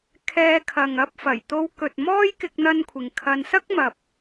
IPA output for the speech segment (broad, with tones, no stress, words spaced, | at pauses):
kʰɛː˧kʰɐ˨ŋ ɐ˧p̚fɐ˨˩jt̪o˧wkɵ˨t̚ mɔː˥j kɪ˥k̚n̪ɐ˥nkʷʰɪ˨ŋ kʰɐ˧n sɐ˥k̚mɐ˨p̚